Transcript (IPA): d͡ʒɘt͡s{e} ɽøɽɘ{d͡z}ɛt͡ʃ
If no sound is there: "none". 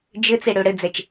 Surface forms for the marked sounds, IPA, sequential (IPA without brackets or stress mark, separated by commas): e, d͡z